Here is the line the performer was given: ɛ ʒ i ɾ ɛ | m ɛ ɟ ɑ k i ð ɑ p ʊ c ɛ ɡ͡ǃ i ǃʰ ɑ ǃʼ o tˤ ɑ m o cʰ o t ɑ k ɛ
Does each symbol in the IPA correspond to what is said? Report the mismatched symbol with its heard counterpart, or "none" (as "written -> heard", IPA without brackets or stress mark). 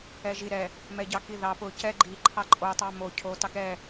none